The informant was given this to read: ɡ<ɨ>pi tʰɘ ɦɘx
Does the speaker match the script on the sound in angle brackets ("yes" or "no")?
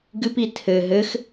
yes